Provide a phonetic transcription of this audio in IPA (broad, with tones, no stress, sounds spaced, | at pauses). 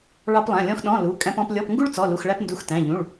ɭ ɑ˥ p lˠ æ̃˧˥˧ lʲ ɔ̃˥ x ɗ ɔ̃˧˥˧ l u˧˥˧ kʼ æ̃˥ p ɔ̃˥ p lʲ ɔ˧˥˧ p ŋ ɡ u˥ ɭ t͡s ɔ˧˥˧ l u˧˥˧ x ɭ æ˥ p n d u˧˥˧ x t æ̃˧˥˧ ʎ ũ˧˥˧ ɭ